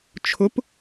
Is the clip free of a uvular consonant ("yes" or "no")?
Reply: yes